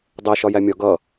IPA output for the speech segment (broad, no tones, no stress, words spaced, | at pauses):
dˤɛ ʃɒjæmʲɒ ɡʌ